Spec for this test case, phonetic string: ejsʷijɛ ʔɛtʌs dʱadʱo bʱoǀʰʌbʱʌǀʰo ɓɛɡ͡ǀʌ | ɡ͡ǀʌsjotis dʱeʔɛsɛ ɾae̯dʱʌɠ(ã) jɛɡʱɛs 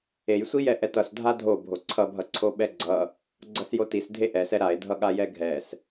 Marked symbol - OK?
no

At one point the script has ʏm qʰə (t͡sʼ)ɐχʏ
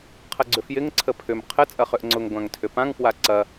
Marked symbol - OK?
yes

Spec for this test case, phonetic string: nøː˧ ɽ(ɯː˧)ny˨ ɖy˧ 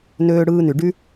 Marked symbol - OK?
yes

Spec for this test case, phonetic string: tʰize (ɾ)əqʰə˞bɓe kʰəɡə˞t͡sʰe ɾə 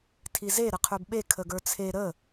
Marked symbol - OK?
yes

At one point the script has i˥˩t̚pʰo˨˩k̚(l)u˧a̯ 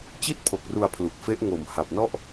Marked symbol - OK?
no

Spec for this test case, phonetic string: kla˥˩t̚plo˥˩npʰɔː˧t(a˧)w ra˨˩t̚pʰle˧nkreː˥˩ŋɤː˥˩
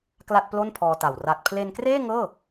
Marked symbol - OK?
no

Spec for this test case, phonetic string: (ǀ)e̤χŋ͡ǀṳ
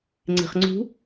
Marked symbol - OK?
no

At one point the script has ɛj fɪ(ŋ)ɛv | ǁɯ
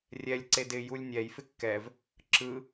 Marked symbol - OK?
no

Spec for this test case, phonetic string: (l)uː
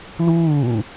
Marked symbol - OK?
yes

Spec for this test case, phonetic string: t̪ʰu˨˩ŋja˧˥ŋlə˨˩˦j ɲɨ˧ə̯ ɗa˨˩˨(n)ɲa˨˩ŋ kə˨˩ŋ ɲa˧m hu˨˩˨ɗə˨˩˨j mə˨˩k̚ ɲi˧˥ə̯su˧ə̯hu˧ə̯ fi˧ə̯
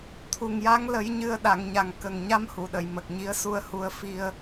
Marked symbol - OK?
no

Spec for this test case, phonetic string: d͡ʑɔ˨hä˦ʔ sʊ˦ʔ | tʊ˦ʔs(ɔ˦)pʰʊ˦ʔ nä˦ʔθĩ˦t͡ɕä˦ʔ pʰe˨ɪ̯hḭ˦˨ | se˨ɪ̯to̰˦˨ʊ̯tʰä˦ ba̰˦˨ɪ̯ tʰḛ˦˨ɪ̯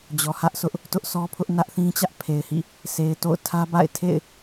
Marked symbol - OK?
yes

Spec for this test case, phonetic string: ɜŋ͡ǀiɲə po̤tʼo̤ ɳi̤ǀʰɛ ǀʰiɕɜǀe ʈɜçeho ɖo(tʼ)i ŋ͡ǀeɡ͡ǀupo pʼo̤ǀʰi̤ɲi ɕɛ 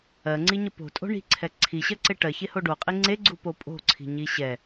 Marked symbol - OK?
no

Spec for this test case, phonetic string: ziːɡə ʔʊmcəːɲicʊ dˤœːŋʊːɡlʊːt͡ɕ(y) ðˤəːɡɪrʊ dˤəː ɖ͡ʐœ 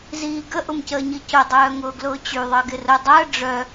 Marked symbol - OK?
yes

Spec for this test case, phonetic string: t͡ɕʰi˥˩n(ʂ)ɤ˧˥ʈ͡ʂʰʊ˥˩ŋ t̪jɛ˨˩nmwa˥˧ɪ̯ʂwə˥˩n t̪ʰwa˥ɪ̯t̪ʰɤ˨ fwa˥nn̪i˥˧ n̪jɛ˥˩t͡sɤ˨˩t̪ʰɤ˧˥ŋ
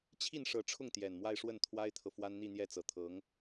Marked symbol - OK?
yes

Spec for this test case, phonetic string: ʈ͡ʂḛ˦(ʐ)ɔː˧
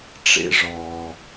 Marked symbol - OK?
yes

